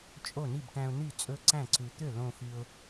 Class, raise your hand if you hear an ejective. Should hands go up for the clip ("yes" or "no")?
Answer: yes